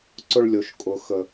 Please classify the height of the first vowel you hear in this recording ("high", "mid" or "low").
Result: high